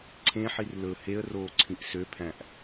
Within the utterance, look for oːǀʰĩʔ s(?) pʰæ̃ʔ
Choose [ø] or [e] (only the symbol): ø